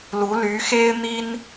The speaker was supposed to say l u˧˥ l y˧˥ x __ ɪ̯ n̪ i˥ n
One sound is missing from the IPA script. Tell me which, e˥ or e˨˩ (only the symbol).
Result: e˥